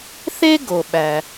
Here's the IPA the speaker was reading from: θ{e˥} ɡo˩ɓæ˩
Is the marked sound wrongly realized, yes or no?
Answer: no